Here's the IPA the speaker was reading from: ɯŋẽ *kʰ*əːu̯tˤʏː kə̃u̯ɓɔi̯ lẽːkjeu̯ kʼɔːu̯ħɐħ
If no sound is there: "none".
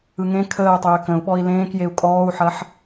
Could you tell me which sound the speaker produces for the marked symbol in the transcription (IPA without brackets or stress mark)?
kʰ